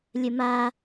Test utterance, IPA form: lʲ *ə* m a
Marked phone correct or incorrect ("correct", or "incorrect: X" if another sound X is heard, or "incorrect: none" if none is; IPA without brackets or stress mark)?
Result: correct